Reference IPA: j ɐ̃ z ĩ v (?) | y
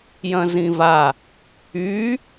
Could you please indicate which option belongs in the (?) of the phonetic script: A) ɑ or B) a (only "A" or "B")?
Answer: B